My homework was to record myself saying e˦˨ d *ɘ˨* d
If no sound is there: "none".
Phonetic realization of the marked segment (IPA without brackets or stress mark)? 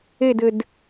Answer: ɘ˨